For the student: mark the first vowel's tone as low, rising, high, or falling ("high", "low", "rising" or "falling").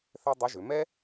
high